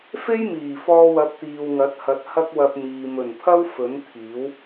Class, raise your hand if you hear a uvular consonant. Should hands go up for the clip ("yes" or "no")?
no